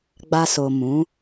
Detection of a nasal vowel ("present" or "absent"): present